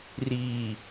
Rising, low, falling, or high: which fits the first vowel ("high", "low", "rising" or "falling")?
low